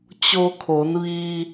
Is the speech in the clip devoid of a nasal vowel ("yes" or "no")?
yes